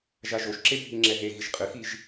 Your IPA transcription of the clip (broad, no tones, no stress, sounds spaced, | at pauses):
ʒ a ʒ o ʃ ǁ e bʱ i ŋ͡ǁ ɛ ɦ e ɣ i ʃ qʼ ɨ x i ʒ